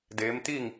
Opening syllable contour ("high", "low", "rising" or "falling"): rising